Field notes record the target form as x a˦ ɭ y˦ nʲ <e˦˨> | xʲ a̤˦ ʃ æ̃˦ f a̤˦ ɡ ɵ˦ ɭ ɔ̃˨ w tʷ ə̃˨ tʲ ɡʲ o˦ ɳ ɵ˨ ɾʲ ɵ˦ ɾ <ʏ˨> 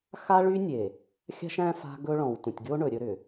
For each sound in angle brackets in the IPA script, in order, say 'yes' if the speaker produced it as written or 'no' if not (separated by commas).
no, yes